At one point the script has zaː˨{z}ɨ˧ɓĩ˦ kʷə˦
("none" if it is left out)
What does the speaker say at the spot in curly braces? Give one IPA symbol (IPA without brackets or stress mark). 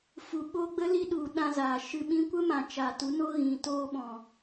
ʃ